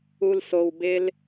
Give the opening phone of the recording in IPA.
u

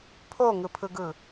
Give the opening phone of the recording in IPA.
pʰ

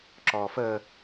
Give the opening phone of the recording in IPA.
ǁ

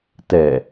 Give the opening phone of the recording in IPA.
t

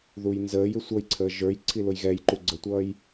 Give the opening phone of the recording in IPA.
ð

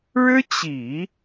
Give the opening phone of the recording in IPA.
ɻ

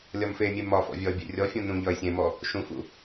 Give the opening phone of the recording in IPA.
lʲ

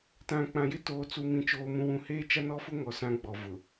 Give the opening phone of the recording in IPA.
t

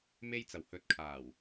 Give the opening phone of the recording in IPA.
m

